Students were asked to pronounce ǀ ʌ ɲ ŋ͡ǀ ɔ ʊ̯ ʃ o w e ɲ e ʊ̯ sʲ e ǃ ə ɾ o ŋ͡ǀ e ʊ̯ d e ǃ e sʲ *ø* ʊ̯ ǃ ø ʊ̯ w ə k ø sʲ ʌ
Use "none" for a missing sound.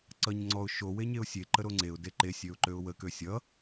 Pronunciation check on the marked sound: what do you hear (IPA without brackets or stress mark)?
ø